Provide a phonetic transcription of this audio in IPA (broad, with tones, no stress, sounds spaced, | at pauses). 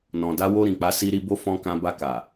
n ɔ̃˨ d a˧ w o˧ ɾ ĩ˨ k͡p a˨˦ s i˧ ɾ i˧ b o˦ f ɔ̃˧ k ã˧ b a˧ k a˨